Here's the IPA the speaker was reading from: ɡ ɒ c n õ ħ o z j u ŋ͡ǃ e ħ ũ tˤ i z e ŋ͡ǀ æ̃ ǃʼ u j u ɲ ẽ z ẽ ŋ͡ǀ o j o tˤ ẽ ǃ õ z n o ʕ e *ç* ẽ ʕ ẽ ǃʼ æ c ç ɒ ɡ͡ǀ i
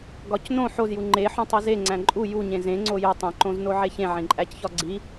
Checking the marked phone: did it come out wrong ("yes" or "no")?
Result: no